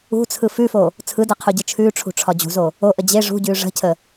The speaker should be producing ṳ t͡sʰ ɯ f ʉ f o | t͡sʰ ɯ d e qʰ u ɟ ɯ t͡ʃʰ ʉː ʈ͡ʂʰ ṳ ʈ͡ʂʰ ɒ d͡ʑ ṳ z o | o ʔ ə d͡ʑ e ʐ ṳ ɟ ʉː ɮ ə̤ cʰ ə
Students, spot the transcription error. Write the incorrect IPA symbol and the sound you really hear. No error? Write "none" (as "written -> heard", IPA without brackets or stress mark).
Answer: ɮ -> ʐ